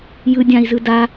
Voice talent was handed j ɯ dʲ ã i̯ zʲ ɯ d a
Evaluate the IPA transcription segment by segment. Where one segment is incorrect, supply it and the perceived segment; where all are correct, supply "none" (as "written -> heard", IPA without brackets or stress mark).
zʲ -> z